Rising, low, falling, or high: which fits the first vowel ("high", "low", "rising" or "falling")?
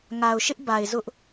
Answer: low